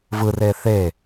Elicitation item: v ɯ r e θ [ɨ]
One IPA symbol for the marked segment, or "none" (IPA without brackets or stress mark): e